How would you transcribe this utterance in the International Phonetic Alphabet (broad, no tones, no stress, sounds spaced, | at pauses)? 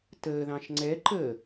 t əː ð ɑ̃ ʃ ŋ͡ǀ ɛ ǃ əː